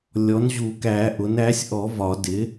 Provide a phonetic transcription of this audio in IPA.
lʲɔ˩˥nʑu˨˩˦kæ˨˩˦ʔʊ˩˥n æ˩˥sʲʔɔ˨˩˦ vɒ˨˩˦dɪ˩˥

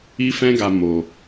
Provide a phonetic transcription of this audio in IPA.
i˦fɛ̃˦ɡa˧ mo˧

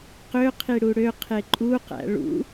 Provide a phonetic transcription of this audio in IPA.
qø qʰiɽuɽø qʰeǃʼu qæ̰ɭṵ

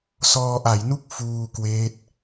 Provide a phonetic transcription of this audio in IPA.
sɔː˧ʔa˩˦jnu˥˩k̚ fuː˧kweː˦˥t̚

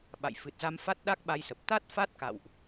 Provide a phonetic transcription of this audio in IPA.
ɓa̰˧˨jfɨ˨˩t̚za˧m fa˦˥t̚ɗa˦˥k̚ɓa˧jsə˨˩p̚ t̪a˦˥t̚ fa˦˥t̚ka̰˧˨wʔ

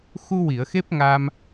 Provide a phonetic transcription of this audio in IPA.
xu˧wi˨˩˨ə̯ xe˦˥p̚ ŋa˧m

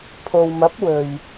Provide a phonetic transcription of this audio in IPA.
pʰo˨wmɐ˨˥p̚ wɵ˨ɥ

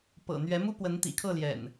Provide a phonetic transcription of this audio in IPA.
pɤ̰˨˩ n̪ɥɛ˨˦mu˦ pwə˨˦nt̪ḭ˨˩kʰɤ˥˨ljɛ̰˨˩n

